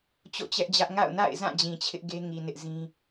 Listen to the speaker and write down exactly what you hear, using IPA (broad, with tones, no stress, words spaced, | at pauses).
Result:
t͡ɕo̰˦˨t͡ɕɛ˦ʔd͡ʑä˦ʔ ŋa̰˦˨ʊ̯na̰˦˨ɪ̯zã˦˨ d͡ʑĩ˨t͡ɕʰɪ˦ʔɡe˦ŋi˨ nɪ˦ʔzĩ˦